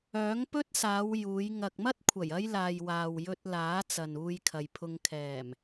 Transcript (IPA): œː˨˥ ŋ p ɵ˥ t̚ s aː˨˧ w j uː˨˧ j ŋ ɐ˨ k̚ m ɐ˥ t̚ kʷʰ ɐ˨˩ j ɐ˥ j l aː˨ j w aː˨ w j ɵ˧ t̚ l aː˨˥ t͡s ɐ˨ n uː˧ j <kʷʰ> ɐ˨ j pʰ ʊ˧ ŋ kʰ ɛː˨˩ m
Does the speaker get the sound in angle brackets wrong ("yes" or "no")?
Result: yes